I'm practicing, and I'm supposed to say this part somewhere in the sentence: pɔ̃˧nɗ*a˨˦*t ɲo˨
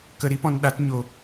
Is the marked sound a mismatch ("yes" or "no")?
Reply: no